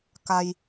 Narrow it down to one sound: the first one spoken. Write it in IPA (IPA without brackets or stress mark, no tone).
k